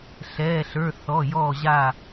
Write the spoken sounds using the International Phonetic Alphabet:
ɬ ɛː˩˧˩ ɬ ə˞˩˧˩ θ ɔ˩˧˩ j ɔː˧˩ ʑ a˧˩

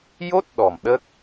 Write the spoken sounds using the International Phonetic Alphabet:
j o˦˥ t̚ ɗ ɔ˨˩ m ɗ ə˦˥ k̚

